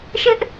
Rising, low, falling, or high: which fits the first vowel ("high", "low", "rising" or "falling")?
high